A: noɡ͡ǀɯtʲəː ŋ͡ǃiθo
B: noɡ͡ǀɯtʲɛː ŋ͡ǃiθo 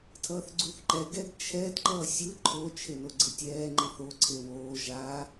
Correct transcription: B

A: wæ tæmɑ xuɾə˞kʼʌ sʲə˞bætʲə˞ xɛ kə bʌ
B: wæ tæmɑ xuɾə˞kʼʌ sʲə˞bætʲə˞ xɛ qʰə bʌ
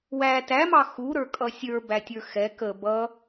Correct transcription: A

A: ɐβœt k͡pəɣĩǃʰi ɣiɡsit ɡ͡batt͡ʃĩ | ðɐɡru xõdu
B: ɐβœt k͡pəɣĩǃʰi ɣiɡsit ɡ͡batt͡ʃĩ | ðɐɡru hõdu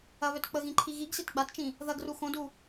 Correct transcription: A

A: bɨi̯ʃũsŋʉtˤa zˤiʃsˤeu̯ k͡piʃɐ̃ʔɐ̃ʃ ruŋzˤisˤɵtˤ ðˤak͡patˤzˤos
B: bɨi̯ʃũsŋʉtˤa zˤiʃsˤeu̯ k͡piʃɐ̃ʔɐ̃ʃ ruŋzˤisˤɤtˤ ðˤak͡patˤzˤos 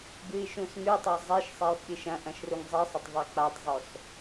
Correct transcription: A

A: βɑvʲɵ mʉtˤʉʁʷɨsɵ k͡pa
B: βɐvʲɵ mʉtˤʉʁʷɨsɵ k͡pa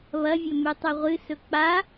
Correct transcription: B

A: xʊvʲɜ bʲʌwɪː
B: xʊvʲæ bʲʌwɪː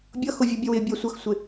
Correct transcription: A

